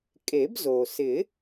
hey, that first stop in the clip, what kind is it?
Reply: ejective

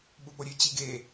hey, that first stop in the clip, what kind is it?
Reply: implosive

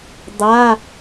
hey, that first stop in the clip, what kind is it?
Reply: plain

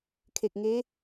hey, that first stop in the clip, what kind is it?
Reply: aspirated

